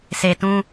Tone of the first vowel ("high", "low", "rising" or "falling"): low